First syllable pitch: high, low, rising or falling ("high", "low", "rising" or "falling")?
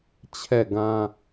falling